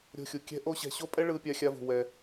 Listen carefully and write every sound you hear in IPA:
ɾʲo̤˧xʲu˨ kʲɛ̤˦ʔo˦ɕɛ̤˧ ɕo˦pʼɛ˦ ɭɯ˦pʲa˦xʲa˦vṳ˧ wɛ˧

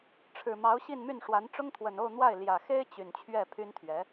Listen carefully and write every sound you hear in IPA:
ʈ͡ʂʰɻ̩˨˩mɑ˧˥ʊ̯ ɕi˥˧nmy˥˩nʂwa˧˥n ʈ͡ʂʊ˥ŋt̪ʰwə˨˩no˥˧ʊ̯n̪wa˥˩ɪ̯ ljä˨˩xe˥ɪ̯ t͡ɕy˨˩nt͡ɕʰɥɛ˥˩ pʰy˥nt̪ʰɥɛ˧˥

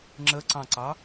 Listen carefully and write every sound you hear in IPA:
ŋ͡ǁəǀɑ̃ǀɑ

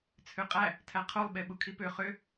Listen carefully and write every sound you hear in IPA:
t͡sʰøqʼæ | tʰæqʰolˠ ɓeɓukʰipø χø

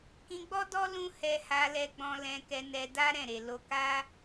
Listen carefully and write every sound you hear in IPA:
kĩ˧ɡ͡bɔ˦dɔ˦ lũ˦ hɛ˧ha˧lɛ˧ɡ͡bɔ̃˧ lɛ̃˧kɛ˧ nɛ˧da˦ ɾɛ̃˦˨ɾe˨ lo˧ka˦

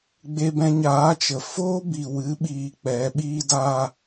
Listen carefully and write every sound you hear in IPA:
ɡ͡be˧bɛ̃˧ɲaː˨˦t͡ʃə˨ foː˦bi˨wɨ˨˦ ɓiː˧k͡pɛ˨˦ ɓiː˦da˦

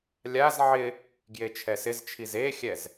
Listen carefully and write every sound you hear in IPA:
lʲaz ʕɪ | ɡjet͡ʃʰɛsɪzt͡ʃʰiz exʲɛz

